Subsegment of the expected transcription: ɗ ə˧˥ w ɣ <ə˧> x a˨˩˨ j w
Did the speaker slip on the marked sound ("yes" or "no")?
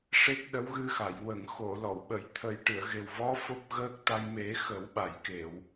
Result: yes